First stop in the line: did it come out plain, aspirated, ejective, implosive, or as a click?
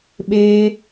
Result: implosive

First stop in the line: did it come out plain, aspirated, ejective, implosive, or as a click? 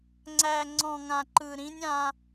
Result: click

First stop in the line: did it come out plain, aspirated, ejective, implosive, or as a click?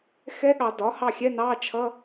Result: implosive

